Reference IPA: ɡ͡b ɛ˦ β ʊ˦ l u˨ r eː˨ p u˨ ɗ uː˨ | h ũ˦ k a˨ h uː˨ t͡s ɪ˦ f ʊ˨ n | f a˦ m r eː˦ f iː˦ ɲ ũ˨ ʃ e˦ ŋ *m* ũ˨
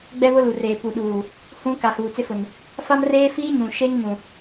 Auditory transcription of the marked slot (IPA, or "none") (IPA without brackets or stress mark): m